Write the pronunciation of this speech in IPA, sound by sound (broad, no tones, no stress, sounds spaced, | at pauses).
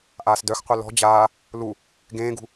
ʔ aː s d œ x qʷ œ l ɔ̤ d͡ʑ aː | l u | ɡ ẽː ɡ ṳ